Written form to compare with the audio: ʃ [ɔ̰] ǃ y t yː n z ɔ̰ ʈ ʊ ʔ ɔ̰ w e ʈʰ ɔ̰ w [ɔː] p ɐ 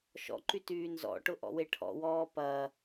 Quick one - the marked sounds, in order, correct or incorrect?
correct, correct

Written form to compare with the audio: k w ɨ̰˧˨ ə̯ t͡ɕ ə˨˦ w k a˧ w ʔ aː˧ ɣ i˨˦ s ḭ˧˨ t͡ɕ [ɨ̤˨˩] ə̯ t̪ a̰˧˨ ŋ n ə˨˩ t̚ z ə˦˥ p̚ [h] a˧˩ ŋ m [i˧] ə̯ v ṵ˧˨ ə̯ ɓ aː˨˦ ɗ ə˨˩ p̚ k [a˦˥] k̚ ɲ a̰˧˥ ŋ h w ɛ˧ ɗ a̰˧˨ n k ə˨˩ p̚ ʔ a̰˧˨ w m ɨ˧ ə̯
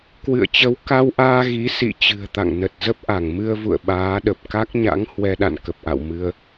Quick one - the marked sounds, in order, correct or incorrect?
correct, incorrect: ʔ, incorrect: ɨ˧, correct

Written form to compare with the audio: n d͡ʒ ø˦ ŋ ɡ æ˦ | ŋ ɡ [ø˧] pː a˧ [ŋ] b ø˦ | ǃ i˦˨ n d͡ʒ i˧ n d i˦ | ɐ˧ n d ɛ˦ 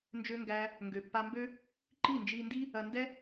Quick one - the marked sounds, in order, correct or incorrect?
incorrect: ø˨, incorrect: m

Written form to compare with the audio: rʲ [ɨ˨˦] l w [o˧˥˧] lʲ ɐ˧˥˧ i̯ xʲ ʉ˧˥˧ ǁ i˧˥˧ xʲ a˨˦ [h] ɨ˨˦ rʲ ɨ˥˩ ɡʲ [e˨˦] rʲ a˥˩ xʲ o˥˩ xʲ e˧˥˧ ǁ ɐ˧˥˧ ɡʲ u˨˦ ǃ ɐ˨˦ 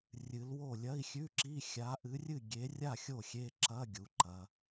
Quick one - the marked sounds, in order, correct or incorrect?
correct, incorrect: o˥˩, incorrect: ʔ, correct

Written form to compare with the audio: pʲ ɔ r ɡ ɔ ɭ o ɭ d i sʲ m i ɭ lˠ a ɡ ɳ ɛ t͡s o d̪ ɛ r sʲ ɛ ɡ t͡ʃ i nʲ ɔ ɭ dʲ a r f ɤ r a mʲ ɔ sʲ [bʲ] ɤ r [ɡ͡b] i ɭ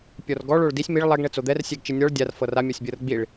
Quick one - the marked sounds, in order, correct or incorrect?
correct, correct

